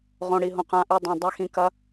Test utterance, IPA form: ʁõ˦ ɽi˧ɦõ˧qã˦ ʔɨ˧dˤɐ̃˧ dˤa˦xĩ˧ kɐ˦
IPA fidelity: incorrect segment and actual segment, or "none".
none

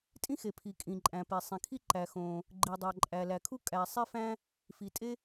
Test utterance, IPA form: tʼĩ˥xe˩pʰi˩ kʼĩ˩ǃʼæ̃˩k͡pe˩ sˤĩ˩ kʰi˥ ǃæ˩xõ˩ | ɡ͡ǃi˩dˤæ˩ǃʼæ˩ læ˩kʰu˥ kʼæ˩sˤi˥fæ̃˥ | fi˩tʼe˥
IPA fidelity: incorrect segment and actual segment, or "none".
k͡p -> p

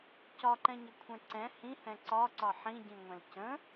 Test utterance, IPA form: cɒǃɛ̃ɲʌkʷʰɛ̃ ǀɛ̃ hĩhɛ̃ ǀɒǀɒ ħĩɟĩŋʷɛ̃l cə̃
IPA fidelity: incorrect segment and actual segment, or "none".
none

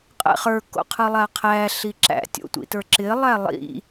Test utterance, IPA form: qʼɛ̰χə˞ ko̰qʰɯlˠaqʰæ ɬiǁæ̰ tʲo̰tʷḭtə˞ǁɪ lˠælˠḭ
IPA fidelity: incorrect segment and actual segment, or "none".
none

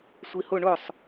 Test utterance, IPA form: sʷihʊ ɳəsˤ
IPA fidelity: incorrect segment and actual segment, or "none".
ə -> ʊ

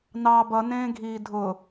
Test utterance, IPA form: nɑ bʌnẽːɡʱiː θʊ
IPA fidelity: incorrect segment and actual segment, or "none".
θ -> dʱ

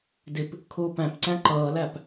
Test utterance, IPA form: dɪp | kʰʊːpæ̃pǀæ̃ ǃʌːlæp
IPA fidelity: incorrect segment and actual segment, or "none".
none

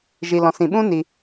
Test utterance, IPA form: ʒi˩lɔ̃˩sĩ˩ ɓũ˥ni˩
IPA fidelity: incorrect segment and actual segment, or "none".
none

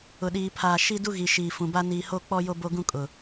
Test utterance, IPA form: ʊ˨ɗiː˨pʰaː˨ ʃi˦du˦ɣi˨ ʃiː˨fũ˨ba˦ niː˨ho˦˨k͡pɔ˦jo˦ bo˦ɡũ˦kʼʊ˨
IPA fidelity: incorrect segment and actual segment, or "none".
none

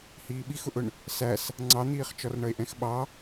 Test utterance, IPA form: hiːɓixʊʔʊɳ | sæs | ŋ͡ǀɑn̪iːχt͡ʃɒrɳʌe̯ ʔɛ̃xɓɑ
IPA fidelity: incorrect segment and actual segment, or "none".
none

